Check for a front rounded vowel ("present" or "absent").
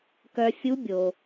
present